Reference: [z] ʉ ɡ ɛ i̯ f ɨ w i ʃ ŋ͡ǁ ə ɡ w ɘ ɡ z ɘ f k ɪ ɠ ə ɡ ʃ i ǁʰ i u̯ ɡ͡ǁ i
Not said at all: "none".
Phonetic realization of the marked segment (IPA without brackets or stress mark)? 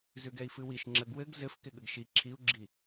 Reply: z